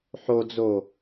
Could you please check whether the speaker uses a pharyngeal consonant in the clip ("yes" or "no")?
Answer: yes